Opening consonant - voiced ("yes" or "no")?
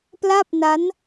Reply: no